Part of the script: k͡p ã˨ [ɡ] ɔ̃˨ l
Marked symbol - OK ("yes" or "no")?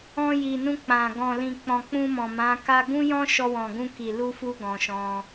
yes